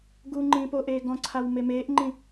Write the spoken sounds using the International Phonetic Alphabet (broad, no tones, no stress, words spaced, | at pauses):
ɡuŋ͡ǃĩː poʔeː ɡɔ̃ǀʰaw memeːʔŋ͡ǃĩ